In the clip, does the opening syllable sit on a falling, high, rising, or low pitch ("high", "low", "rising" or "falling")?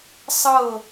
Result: falling